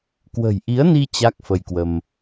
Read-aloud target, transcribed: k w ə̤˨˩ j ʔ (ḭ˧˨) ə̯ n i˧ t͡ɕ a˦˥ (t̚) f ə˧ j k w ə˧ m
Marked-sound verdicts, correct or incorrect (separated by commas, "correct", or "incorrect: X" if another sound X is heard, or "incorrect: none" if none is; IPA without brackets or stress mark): incorrect: i˨˦, incorrect: k̚